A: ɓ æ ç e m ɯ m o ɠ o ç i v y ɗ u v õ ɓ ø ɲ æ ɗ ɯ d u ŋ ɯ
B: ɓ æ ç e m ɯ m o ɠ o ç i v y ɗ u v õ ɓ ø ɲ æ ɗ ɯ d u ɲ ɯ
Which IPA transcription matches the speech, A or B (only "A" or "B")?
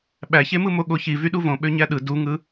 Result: A